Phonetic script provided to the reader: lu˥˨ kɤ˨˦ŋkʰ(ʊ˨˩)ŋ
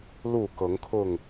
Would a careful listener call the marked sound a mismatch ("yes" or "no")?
yes